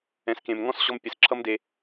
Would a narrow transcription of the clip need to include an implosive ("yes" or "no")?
no